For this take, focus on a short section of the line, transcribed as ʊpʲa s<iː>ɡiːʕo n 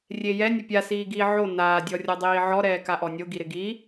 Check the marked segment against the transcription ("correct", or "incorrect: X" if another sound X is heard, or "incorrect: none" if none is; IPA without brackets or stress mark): correct